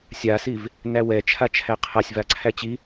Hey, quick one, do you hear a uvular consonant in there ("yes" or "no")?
yes